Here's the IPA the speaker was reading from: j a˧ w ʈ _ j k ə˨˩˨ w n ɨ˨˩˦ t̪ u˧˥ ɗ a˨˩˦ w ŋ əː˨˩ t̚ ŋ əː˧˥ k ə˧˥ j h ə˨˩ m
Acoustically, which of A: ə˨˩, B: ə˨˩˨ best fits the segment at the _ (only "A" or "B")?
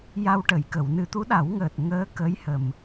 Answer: B